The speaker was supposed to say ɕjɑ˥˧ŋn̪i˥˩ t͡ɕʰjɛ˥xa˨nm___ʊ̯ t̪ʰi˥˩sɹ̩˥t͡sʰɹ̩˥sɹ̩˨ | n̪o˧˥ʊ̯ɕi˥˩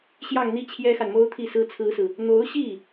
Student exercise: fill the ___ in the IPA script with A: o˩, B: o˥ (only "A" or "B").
B